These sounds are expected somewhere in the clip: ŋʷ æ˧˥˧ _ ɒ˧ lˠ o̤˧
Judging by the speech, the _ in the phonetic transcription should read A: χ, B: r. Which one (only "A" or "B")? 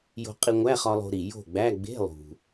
A